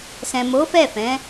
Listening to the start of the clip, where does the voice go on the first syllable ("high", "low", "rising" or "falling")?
low